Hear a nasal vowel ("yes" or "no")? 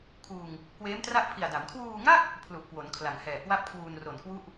no